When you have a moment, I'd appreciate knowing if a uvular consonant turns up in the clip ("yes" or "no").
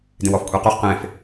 yes